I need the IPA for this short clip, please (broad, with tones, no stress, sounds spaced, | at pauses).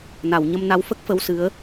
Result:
n a˨˩˨ w ɲ ə˧ m n a˧˥ w f ə˦˥ k̚ f ə˧˥ w s ɨ˧˥ ə̯